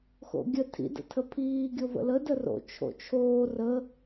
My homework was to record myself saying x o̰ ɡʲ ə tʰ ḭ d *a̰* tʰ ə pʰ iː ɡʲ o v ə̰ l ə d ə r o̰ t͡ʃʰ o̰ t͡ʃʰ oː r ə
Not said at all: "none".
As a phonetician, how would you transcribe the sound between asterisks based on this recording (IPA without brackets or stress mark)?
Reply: ə̰